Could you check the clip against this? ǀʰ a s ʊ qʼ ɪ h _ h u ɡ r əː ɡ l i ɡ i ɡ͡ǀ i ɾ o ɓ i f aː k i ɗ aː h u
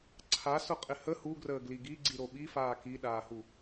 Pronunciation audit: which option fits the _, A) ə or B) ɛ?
A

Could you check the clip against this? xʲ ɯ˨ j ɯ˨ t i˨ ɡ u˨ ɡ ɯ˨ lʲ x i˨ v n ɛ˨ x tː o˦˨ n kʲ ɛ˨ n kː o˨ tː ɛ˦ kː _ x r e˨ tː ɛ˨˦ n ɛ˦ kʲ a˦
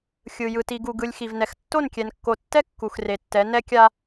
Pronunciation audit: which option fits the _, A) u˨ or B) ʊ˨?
A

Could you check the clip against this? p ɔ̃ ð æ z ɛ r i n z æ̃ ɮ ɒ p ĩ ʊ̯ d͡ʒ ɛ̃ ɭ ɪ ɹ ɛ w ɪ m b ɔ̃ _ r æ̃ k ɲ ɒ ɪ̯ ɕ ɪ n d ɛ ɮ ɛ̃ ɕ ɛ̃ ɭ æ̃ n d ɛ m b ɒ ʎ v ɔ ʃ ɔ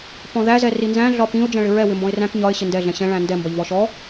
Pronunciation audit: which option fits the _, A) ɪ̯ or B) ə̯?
A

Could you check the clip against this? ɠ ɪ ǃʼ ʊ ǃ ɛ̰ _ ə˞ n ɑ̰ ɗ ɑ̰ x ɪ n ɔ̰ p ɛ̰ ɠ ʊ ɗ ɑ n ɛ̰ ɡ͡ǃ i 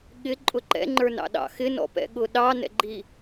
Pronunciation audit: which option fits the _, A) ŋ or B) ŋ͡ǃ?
B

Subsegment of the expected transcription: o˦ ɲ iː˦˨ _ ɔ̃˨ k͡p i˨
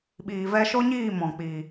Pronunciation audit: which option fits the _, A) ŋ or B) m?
B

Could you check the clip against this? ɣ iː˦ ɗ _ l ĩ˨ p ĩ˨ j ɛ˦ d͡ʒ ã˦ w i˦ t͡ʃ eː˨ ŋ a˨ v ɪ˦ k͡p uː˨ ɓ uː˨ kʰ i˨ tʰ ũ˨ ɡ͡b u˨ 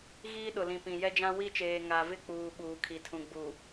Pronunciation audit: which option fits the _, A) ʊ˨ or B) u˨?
A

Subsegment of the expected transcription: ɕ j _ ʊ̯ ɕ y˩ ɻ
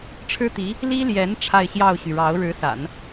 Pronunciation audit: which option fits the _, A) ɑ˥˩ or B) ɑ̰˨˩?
A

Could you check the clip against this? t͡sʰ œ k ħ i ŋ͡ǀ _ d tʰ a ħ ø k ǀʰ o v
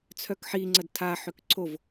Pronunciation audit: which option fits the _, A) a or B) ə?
B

